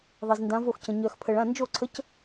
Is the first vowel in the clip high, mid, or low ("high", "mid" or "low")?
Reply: mid